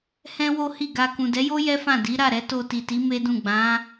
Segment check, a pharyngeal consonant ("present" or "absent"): absent